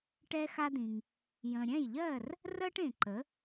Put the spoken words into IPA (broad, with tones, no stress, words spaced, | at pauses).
ʈɛ˧xa˧d̪ĩ˩ŋ | jə̃˩ɾʲɛ̃˥˩jʎɜ˥˩r | rɜ˥ʈẽ˩ ǃə˩˥